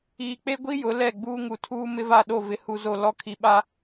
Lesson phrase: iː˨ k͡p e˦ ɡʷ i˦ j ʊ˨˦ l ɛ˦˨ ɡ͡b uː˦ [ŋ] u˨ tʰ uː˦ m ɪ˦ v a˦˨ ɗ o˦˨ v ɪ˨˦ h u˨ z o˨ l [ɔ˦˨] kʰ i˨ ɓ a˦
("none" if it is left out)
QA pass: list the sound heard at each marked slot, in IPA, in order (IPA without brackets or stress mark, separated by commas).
ŋ, ɔ˦˨